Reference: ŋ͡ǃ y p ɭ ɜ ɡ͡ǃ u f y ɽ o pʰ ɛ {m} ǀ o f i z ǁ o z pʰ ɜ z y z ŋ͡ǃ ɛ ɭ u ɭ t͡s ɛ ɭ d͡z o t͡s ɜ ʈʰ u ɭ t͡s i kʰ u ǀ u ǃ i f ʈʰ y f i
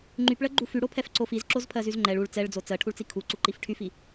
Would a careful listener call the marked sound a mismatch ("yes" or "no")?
yes